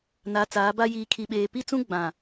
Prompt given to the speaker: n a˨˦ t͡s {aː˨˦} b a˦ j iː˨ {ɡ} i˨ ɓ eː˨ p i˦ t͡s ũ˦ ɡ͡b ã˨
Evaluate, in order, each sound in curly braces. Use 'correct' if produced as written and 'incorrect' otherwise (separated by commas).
correct, incorrect